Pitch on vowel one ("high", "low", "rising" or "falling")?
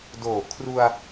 low